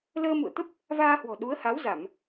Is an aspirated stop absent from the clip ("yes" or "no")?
yes